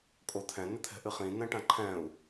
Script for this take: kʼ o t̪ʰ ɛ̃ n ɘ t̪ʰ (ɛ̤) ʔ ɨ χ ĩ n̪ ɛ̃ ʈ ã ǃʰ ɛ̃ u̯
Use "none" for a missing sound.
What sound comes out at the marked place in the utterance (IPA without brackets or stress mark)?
ɛ̤